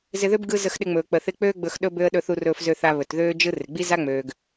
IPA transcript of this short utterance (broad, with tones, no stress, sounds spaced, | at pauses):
z ɪ˧ ð ø˥ b ɡ ɯ˧ z ə˧ x ɗ ɪ˧ ŋ͡m ɵː˩ k͡p ə˩ θ ɪ˧ k͡p øː˥ ɡ͡b ɵ˧ x ɗ ɵ˥ b ø˥ ə̯ ɗ ɵ˧ θ u˧ r ɵː˧ f z ø˧ θ a˧ β ɵ˩ t ð øː˥ d͡ʒ ɯ˥ r ɪ˩ ɡ͡b i˥ z a˥ ŋ͡m øː˩ ɡ